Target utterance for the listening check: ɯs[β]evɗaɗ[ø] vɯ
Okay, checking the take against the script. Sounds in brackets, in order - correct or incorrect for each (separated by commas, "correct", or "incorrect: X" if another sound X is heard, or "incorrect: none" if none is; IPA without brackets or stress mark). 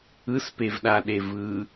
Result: incorrect: p, incorrect: e